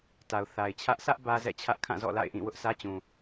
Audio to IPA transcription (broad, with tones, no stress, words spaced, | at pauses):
ta˨ʊ̯ θa˨ɪ̯t͡ɕʰä˦ʔ sʰä˦ʔ bä˦zɛ̰˦˨t͡ɕʰä˦ʔ kʰã˦˨zɔ̰˦˨la̰˦˨ɪ̯ʔĩ˦˨ wʊ˦ʔsä˦t͡ɕũ˨